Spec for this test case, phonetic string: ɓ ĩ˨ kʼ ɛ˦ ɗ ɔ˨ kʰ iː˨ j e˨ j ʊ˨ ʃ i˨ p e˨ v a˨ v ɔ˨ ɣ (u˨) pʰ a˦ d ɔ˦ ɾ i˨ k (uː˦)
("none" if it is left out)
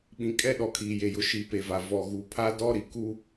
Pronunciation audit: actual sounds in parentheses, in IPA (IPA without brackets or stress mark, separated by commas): u˨, u˦